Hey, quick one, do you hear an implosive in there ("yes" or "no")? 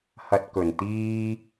no